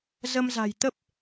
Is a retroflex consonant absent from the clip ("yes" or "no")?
yes